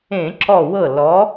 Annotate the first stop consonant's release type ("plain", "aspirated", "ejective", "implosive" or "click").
click